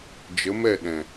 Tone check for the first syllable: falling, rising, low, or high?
rising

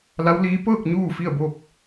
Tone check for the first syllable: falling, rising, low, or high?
rising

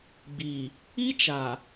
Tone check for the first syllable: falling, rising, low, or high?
low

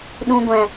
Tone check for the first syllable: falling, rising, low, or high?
high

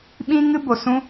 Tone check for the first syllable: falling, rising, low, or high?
high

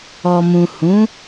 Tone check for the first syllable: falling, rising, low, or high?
low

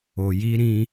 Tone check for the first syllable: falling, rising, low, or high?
low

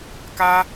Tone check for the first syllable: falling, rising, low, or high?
high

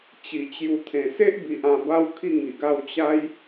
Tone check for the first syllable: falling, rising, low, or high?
low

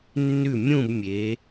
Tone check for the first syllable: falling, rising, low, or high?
falling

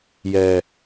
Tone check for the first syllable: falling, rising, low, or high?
low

